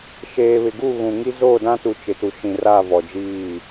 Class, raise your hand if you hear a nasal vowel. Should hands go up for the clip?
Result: yes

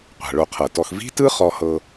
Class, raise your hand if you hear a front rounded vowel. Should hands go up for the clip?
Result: no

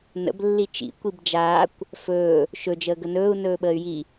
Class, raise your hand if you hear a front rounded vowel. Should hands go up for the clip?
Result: yes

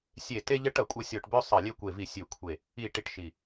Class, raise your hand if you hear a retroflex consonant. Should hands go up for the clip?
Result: yes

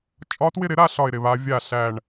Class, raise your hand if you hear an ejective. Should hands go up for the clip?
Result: yes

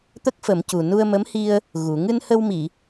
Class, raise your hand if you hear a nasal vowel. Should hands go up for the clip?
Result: no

